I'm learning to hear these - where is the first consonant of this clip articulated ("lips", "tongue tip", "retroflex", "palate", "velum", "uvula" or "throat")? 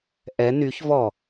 throat